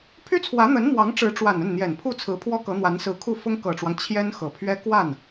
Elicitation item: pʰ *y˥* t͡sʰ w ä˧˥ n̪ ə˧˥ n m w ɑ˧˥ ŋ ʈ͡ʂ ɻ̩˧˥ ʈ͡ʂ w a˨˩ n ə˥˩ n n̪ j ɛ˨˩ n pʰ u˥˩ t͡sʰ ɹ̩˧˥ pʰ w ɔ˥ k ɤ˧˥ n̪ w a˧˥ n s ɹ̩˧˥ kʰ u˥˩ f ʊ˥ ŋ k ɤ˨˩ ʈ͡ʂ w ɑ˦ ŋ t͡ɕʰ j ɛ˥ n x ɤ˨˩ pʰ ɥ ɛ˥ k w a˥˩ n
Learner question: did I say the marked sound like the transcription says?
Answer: yes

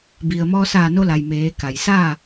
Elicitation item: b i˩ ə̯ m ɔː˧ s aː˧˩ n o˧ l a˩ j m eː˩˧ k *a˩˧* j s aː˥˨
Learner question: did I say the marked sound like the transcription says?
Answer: no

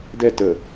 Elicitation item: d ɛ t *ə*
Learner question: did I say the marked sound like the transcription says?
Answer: yes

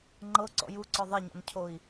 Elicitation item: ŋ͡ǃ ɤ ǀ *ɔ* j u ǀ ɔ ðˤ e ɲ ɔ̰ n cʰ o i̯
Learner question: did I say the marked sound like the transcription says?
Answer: no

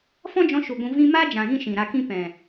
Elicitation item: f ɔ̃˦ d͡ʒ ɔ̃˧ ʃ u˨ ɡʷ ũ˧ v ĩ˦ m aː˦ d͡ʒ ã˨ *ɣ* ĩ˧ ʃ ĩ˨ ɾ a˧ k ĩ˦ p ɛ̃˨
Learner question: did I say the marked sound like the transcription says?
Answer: yes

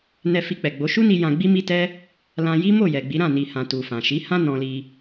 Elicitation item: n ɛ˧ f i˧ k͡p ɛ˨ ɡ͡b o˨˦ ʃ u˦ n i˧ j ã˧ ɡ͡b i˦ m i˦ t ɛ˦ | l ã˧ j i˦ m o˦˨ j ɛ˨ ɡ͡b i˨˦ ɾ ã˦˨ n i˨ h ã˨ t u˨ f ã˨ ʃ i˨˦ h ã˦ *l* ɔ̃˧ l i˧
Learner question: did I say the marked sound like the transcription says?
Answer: no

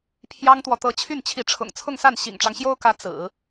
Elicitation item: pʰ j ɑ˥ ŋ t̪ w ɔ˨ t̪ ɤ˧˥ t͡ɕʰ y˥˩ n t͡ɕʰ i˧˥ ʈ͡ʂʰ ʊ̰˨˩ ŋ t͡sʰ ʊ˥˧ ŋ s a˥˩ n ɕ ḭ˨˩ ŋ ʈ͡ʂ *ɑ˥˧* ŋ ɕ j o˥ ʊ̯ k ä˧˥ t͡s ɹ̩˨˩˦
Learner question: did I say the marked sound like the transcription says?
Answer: no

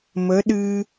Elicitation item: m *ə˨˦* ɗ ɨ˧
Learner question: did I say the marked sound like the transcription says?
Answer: yes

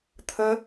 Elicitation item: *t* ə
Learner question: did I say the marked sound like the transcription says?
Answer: no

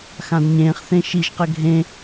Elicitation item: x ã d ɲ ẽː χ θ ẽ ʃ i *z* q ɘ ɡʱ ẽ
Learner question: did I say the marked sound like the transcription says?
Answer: no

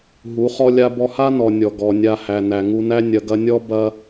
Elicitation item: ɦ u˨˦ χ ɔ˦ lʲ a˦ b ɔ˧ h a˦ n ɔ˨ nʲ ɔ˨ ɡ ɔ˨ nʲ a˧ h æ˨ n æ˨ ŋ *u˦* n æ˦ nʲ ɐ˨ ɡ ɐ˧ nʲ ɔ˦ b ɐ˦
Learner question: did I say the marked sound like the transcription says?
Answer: no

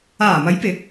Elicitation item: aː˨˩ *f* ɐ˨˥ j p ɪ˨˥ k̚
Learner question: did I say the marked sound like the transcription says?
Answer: no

